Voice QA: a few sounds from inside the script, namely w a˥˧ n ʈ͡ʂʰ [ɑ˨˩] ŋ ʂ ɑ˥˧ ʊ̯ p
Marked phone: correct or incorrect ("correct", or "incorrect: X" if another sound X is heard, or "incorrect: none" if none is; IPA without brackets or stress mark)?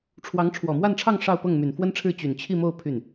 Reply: incorrect: ɑ˥˧